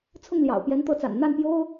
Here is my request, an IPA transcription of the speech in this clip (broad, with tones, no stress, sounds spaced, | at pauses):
t͡sʰ ʊ˥˩ ŋ l j ɑ̰˨˩ ʊ̯ p j ɛ˧˥ n t̪ ɤ˧˥ t͡s a̰˨˩ n n̪ a˥˩ n p j o˥ ʊ̯